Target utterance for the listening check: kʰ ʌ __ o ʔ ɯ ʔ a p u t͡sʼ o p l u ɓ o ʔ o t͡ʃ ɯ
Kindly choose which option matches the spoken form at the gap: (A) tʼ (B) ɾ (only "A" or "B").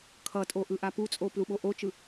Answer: A